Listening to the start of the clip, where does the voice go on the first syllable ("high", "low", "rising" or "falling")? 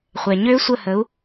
low